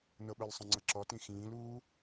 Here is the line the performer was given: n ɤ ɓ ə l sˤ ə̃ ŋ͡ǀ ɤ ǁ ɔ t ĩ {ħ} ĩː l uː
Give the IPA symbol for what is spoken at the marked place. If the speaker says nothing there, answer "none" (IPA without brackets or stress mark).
x